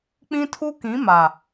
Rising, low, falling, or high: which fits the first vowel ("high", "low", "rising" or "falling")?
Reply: high